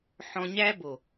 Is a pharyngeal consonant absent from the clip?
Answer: no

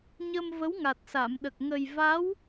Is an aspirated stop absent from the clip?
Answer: yes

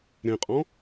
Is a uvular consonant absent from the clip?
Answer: no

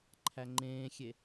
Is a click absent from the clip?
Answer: no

